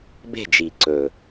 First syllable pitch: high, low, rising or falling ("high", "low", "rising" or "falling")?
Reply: falling